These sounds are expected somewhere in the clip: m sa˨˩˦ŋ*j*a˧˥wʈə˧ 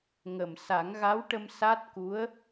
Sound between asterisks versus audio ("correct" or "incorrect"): incorrect